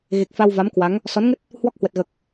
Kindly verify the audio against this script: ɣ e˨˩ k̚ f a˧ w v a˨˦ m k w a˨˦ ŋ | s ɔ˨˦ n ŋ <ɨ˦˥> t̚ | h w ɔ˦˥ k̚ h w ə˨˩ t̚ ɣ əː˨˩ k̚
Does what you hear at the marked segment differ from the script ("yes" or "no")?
yes